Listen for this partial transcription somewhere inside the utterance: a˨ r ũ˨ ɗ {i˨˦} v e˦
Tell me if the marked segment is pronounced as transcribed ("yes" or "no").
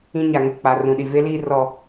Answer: no